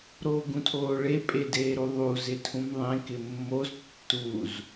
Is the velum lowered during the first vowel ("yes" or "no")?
no